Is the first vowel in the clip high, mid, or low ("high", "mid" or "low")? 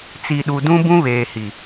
high